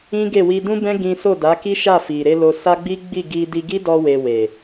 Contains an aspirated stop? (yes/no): no